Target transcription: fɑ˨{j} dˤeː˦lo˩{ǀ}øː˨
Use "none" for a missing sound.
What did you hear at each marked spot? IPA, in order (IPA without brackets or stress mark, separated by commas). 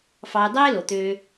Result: j, t̪